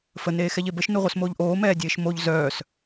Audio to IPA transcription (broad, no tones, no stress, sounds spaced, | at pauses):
f ə n eː x ɛ ʎ e b ə ʃ n u ʁʷ œ s m oː ʎ ʔ oː m ɛː dʲ eː ʃ m o ʎ z œː s